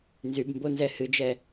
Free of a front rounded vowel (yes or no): no